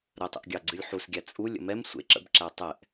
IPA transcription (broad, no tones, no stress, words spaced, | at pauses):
ɾətˤə̰ʔɡʲɑ ɡ͡ǀɨlʲħusɡʲæ t͡sʼulʲə̰ mɛm sʷḛ ǁə̰bǁæ tˤɛʔ